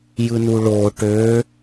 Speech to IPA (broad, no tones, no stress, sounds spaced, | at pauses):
j ɯ n u ɭ o ʈ ø